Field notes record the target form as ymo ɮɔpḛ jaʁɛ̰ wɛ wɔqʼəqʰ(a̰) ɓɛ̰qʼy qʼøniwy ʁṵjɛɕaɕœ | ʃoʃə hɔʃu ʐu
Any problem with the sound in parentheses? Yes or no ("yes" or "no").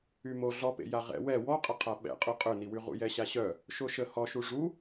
yes